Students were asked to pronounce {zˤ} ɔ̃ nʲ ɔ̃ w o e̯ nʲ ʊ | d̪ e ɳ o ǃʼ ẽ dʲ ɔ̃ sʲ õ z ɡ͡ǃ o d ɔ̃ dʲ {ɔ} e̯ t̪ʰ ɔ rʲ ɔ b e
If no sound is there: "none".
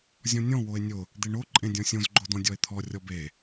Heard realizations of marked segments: zʲ, ɔ

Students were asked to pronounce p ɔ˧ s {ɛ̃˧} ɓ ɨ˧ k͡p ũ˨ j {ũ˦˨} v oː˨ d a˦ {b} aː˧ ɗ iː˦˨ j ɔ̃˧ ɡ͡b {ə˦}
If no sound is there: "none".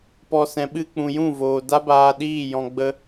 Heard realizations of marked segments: ɛ̃˨˦, ũ˦˨, b, ə˦

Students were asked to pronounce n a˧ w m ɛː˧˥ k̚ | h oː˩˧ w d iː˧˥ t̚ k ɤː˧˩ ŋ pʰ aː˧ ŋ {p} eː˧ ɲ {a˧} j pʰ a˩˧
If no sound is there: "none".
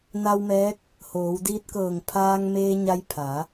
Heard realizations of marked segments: m, a˧

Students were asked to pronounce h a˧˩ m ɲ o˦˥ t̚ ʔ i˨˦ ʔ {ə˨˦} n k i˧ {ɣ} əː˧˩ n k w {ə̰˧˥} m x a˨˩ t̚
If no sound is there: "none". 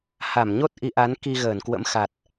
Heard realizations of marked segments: a˨˦, ɣ, ə̰˧˥

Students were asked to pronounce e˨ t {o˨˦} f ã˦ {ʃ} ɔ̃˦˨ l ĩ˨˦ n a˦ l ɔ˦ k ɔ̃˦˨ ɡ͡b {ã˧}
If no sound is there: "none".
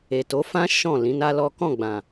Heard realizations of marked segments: o˨˦, ʃ, ã˨

